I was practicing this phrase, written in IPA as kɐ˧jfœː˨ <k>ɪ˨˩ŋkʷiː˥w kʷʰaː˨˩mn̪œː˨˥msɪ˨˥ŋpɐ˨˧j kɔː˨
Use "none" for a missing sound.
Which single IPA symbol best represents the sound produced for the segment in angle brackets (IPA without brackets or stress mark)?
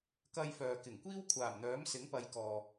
k